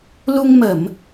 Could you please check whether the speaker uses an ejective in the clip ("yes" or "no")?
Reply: no